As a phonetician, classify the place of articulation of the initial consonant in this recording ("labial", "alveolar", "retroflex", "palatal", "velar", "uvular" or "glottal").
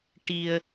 retroflex